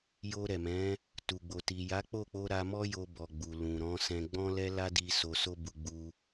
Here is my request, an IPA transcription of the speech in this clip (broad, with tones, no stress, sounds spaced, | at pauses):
j o˧ ɾ ɛ˨ m ɛ̃˨˦ | t u˨ ɡ͡b o˨ t i˨ j a˨˦ k͡p o˦˨ k͡p o˧ ɾ a˧ m ɔ˦ j o˧ b ɔ˨ ɡ͡b u˨ l ũ˨ ɾ ɔ̃˨˦ s ɛ̃˧ ɡ͡b ɔ̃˦ l ɛ˦ l a˦ d i˧ s o˧ s o˦ b u˧ ɡ͡b u˧